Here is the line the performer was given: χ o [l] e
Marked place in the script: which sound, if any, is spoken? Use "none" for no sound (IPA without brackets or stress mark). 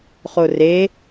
r